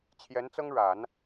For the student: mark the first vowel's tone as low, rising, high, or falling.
rising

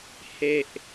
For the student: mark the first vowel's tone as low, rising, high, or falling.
low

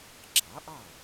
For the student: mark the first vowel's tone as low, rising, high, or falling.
rising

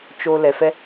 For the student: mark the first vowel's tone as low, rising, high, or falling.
low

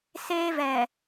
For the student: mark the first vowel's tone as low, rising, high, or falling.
high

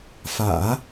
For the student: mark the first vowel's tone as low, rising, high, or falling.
low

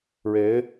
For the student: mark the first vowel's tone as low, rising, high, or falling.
rising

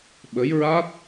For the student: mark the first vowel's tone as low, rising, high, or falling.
rising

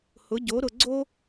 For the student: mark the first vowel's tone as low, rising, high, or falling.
rising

